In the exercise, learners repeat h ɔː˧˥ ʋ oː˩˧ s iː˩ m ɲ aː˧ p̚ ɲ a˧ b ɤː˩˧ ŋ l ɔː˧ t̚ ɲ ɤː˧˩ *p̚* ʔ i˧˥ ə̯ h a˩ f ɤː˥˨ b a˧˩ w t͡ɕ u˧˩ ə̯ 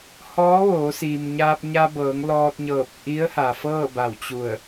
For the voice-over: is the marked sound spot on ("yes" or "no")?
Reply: yes